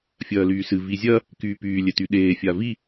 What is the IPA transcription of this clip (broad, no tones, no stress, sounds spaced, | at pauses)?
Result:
fʲ ɐː l yː s ɨ v i zʲ ɐ | k yː p yː lʲ ɛ t y ɗ eː fʲ a v i